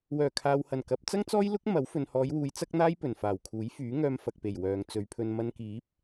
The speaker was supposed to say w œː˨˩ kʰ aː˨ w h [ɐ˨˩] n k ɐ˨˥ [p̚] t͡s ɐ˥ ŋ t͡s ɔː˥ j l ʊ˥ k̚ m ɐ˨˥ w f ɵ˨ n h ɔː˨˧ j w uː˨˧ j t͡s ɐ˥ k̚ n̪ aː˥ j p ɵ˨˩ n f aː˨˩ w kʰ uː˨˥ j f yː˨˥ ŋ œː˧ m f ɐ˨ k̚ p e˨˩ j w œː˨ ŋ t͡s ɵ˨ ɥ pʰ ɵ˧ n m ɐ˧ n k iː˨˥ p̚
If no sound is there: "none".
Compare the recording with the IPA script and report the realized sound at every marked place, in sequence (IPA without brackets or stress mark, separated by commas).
ɐ˨˩, p̚